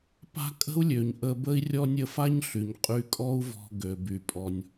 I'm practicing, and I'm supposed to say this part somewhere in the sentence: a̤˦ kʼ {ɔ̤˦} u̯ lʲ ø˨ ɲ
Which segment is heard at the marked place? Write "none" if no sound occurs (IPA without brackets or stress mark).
ə̤˦